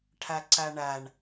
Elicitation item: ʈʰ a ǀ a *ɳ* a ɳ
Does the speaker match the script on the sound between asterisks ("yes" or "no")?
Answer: yes